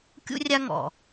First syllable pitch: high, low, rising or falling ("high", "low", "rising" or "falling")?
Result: high